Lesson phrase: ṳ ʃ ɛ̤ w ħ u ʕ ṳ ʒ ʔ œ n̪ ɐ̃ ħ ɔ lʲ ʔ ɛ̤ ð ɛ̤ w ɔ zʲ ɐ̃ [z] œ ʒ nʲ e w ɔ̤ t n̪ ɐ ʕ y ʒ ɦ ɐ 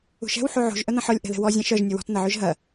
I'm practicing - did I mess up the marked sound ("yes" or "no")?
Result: yes